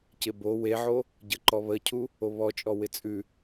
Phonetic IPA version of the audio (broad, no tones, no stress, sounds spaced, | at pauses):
c ɪ b o w e ʕ o | ɟ ə ǃ ɔ β ə cʰ u | o β ɔ t͡ʃʼ ɔ w ɪ t͡sʼ ʉ